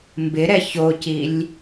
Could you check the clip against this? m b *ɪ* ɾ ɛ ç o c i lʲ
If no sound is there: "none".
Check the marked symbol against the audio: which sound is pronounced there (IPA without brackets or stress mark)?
ɪ